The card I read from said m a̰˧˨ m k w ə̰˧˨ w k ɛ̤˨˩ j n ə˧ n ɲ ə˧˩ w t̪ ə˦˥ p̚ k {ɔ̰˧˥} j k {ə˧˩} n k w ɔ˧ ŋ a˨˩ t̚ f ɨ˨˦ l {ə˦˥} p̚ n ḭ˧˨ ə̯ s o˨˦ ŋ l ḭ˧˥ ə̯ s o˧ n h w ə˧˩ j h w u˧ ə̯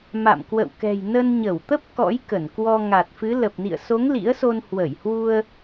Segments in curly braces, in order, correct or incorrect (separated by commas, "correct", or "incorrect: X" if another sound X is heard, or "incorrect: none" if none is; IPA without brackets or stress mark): correct, correct, incorrect: ə˨˩